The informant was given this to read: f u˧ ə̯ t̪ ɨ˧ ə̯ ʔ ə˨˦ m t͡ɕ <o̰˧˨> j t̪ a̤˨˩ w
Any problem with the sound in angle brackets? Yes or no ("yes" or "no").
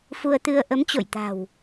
no